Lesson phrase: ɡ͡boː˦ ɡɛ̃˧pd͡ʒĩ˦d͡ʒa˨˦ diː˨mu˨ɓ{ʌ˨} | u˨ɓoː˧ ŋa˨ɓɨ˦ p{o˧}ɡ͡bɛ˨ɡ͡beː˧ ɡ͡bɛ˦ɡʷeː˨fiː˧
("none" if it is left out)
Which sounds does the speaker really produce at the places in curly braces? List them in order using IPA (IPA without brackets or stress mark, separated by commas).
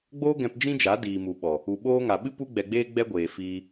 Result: ɔ˨, u˧